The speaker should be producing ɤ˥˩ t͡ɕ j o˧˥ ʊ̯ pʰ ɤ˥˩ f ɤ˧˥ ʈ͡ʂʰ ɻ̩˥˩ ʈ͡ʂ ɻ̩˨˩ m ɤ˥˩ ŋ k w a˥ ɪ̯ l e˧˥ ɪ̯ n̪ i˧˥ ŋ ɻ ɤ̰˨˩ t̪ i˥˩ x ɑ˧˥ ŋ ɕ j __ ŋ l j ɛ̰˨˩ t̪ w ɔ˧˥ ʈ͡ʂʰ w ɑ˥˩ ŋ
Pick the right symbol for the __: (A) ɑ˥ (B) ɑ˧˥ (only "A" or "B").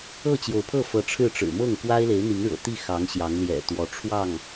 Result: B